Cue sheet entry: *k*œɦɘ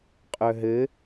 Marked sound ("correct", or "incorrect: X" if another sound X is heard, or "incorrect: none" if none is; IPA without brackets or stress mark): incorrect: qʼ